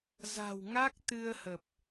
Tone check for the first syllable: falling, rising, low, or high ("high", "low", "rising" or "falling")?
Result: low